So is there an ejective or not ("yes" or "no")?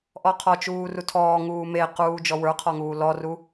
no